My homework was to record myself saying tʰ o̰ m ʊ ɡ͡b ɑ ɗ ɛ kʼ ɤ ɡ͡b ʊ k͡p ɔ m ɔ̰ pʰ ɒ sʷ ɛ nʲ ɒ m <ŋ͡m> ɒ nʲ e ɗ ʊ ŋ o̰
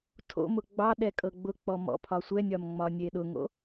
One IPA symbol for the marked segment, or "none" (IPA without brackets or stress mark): ŋ͡m